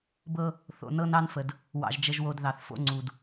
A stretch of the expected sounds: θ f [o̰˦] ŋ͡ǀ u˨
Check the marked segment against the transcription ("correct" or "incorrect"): correct